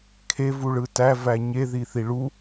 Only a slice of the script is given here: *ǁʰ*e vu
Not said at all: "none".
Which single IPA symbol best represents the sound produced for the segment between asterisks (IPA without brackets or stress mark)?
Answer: kʰ